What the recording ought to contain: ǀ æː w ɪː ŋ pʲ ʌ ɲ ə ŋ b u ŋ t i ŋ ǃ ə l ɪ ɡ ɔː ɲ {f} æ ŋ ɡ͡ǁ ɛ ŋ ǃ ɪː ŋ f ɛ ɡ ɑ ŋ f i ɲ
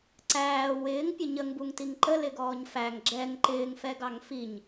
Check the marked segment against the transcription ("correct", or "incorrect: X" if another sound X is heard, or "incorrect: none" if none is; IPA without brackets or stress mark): correct